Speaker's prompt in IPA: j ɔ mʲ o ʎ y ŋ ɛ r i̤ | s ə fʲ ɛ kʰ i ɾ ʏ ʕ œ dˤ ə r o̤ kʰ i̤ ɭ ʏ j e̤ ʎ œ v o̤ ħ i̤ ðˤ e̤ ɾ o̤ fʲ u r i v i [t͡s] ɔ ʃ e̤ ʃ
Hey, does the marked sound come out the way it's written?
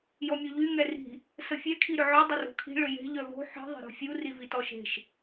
no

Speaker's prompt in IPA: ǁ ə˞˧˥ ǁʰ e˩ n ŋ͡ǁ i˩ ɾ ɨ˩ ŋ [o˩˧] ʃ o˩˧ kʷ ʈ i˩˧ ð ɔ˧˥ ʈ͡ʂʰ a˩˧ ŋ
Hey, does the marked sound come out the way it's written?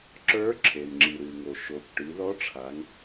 no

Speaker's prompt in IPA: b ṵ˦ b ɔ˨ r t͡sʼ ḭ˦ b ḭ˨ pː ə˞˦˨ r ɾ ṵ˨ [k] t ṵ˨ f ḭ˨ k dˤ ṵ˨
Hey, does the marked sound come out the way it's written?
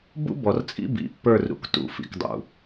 yes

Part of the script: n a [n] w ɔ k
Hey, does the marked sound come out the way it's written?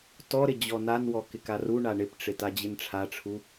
yes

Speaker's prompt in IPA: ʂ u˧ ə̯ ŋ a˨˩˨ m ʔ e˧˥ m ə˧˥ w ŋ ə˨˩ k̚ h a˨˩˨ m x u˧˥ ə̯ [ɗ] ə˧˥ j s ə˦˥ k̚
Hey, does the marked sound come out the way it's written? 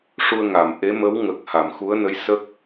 no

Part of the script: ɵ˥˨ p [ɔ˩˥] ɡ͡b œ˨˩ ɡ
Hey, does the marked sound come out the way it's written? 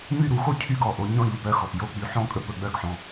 no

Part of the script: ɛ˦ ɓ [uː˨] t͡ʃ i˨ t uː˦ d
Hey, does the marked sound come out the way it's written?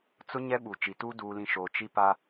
no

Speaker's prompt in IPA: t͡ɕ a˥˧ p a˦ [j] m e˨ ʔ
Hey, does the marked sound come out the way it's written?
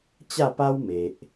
no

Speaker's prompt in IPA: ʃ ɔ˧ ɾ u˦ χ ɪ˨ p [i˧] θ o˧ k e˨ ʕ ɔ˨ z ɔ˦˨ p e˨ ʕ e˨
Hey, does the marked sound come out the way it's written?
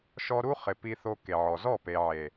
yes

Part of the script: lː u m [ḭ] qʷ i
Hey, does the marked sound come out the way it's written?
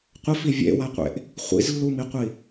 no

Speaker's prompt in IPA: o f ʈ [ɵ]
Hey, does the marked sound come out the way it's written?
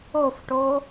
no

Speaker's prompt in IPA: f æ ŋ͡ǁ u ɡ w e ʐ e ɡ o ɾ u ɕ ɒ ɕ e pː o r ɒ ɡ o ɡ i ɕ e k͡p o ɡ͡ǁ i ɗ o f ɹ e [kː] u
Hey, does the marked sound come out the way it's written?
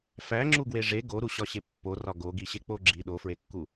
yes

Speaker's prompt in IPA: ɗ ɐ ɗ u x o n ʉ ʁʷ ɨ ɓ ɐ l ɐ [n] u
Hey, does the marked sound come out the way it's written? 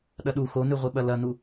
yes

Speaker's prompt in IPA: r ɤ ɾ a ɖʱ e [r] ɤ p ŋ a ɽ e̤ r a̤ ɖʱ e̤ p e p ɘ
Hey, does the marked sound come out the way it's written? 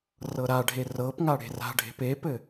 yes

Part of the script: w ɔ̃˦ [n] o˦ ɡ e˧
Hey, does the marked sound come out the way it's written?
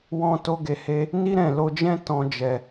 no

